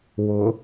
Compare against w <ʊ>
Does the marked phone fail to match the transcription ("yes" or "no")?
no